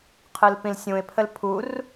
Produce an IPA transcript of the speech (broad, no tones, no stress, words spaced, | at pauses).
qʰɯlpĩlsʲũɪ̯pʰəl pʰur